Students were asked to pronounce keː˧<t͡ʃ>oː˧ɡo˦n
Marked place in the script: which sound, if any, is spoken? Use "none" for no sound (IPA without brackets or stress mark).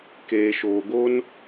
ʃ